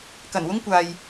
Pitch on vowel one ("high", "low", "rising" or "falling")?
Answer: low